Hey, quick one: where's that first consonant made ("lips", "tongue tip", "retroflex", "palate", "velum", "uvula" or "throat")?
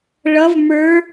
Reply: retroflex